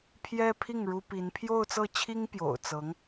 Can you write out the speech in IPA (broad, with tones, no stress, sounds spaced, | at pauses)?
pʰ j ɛ˥ pʰ i˥˩ ŋ ɻ u˥ p i˧˥ n pʰ j o˥˧ ʊ̯ t͡s ɤ˥˩ t͡ɕʰ i˥ ŋ p j o̰˨˩ ʊ̯ t͡s ɤ˧˥ ŋ